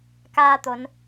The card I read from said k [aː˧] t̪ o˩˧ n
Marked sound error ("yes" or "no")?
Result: no